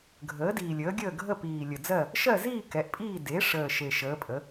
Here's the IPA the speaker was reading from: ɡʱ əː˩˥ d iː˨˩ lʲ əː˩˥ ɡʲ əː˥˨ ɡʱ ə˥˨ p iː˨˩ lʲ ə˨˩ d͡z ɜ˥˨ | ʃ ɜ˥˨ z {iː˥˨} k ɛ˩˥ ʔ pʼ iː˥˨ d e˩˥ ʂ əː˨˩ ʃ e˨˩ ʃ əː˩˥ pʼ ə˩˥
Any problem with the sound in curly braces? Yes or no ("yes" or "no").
no